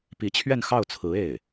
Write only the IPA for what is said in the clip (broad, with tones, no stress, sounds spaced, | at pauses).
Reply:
p i˧˥ t͡ɕʰ ɥ ɛ˥˧ n x ɑ˥˩ ʊ̯ t͡sʰ ɹ̩˧˥ e˥˩ ɪ̯